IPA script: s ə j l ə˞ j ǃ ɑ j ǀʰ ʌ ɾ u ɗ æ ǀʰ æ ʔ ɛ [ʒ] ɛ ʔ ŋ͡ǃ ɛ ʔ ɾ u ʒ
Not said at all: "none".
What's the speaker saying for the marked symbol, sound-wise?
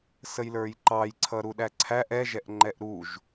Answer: ʒ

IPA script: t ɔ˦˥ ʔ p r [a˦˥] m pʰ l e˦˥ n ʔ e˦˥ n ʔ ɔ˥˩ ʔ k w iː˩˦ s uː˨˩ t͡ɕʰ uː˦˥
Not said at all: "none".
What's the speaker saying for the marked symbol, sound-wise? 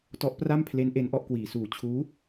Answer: a˥˩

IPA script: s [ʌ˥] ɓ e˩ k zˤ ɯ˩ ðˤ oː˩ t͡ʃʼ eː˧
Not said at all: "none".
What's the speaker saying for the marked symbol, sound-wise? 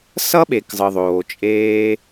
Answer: ʌ˥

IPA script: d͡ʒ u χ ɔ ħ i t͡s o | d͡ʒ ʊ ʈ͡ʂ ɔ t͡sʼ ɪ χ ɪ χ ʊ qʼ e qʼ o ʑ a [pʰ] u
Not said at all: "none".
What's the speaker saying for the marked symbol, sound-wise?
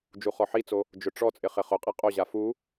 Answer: f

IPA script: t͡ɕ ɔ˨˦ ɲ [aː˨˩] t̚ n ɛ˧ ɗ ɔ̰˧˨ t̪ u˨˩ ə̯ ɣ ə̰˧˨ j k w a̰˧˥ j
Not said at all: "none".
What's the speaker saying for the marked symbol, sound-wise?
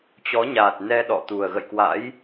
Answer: aː˨˩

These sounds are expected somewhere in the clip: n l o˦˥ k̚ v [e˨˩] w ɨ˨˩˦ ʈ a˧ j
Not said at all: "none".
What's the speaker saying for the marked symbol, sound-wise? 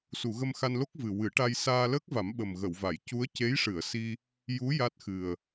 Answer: ɨ˨˩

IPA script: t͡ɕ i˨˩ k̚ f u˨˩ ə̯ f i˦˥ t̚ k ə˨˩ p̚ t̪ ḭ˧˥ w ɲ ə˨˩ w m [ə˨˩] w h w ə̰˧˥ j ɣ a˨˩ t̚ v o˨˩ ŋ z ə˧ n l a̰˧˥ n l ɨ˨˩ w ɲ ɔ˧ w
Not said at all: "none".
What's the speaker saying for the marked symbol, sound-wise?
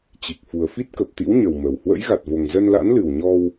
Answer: ə˨˩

